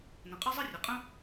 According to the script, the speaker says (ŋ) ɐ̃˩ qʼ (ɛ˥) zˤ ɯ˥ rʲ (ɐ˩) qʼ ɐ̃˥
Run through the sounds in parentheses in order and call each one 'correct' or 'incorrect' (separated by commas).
incorrect, correct, correct